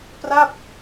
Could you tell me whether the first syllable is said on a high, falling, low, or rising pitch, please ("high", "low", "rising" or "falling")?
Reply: falling